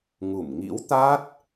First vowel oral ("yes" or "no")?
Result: yes